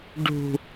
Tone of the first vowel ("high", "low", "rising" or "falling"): low